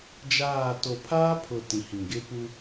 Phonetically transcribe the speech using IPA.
d͡ʒ aː˦˨ t o˨ pʰ aː˦ pʰ ʊ˨ t ĩ˨ h ĩ˨ ɡ ɪ˦ p u˦

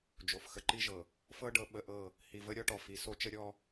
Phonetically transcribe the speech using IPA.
d͡ʒ o˨ f x ə˨ ǃ i˦ ʒ ɤ˨ | f ɤ˦ ɖ ɤ˨˦ ɓ ə˨˦ ʔ ɤ˦˨ | h i˨ v ə˦ ɾʲ ɔ˦ ʈ ɔ˨ f i˨ s o˦ t͡ʃ ə˦ ɾʲ ɔ˦

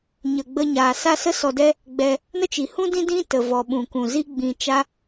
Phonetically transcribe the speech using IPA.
ɲ ə˧ ɡ͡b ə˦ ɲ aː˧ s a˦ s ə˦ s ɔ˧ d ɛ˦ | ɡ͡b ɛ˧ | n ə˦ t͡ʃ i˨ h ũ˦ d ĩ˦ d ĩ˦ t ə˨ v ɔ˨ ɓ ũ˨ k ũ˨ z i˦ ɡ͡b ĩ˧ t͡ʃ a˦

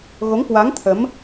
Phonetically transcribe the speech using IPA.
ɣ o˨˦ ŋ k w a˨˦ ŋ t̪ʰ ə˨˦ m

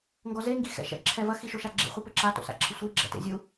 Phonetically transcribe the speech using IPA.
ŋ ɡ ɔ z e ŋ ɡ i x ɛ̰ ʃ ɛ̰ ǁʰ ɛ v ɐ x i ʃ o ʃ a ɡ͡ǁ ḛ χʷ i p ɘ ǁ a t o̰ s a̰ ǁʰ ɘ sʷ i ɡ͡ǁ ɛ̰ t ḛ zʲ u

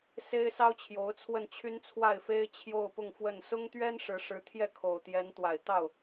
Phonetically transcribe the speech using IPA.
s e˥ ɪ̯ s ɑ˥ ʊ̯ t͡ɕʰ j o˧˥ ʊ̯ t͡sʰ w ə˥˩ n t͡ɕʰ y˥ n t͡sʰ w a˥˩ ɪ̯ f e˥ ɪ̯ t͡ɕʰ j o˥˧ ʊ̯ p ʊ˥˧ ŋ f w ə˥˩ n s ʊ˥ ŋ t̪ ɥ ɛ˥ n ʂ ɻ̩˧˥ ʂ ɻ̩˧˥ t̪ʰ j ɛ˥˩ kʰ o˨˩ ʊ̯ t̪ j ɛ˧˥ n t̪ w a˨˩ ɪ̯ t̪ ɑ˥˩ ʊ̯

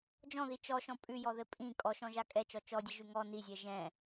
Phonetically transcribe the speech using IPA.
d͡ʒ ɔ̃ ð i t͡ʃ ɔ ʃ ɔ̃ pʼ ʉ j ɔ ð ɘ pʼ ĩ kʼ ɔ ʃ ɔ̃ ʒ a kʼ ɛ t͡ʃ ɔ t͡ʃ ɔ dʲ ɘ ʒ ʉ ŋ ɔ n i zʲ ɛ ʒ ɛ̃

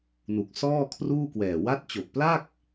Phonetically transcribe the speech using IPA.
n u˨˩ k̚ s ɔː˥˩ kʰ r uː˥˩ k w ɛː˨˩ w a˦˥ t̚ t͡ɕ o˨˩ k̚ p l a˥˩ k̚

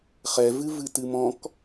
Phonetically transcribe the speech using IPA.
χ ɛ v ɨ v ɨ t ɨ m ɔ̃ k

